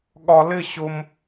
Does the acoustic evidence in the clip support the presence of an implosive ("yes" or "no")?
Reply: yes